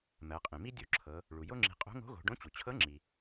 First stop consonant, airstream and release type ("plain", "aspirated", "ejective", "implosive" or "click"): ejective